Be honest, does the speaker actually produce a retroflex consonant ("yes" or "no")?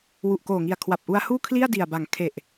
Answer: no